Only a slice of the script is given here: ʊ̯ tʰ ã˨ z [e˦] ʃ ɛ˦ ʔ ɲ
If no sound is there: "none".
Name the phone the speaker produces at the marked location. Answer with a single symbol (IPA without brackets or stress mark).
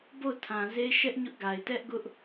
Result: e˦